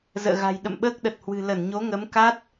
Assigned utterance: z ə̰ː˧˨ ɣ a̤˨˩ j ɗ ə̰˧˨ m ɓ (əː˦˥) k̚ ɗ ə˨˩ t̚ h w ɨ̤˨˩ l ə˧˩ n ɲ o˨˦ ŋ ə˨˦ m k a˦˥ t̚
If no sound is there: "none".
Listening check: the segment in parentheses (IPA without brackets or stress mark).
əː˦˥